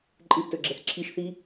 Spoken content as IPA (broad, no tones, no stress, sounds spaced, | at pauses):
ǃʼ ɨ ʔ t ɵ ɡ͡ǁ ɛ θ ǁʰ i ʃ θ i